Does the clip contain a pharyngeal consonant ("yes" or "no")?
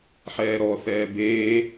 yes